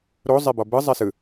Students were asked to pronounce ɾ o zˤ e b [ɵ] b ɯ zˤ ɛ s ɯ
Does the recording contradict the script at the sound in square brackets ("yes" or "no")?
yes